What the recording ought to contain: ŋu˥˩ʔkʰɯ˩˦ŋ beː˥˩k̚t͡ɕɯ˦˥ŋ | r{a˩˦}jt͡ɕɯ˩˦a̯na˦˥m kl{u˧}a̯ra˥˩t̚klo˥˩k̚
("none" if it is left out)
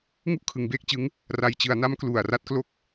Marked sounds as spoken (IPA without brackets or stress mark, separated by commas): a˨˩, u˨˩